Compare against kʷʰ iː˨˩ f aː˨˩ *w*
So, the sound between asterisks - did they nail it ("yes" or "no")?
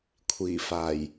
no